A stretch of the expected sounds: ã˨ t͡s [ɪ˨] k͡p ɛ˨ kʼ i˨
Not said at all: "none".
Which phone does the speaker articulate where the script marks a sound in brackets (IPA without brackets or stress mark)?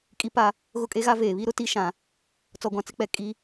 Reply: ɪ˦